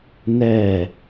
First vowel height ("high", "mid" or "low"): mid